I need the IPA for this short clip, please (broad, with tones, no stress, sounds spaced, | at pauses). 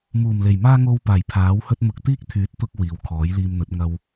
m uː˨˩ m l e˨˩ j m aː˥ ŋ o˧ w p aː˨˩ j pʰ aː˨˥ w h ɵ˥ t̚ m ʊ˧ k̚ t̪ iː˥ k̚ t̪ʰ yː˨˥ t̚ t̪ ʊ˧ k̚ w iː˨˧ w kʰ ɔː˨˥ j l iː˧ m n̪ ɵ˨˥ t̚ ŋ ɐ˧ w